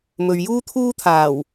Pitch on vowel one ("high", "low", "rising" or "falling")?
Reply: low